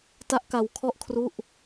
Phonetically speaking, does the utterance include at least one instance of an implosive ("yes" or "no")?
no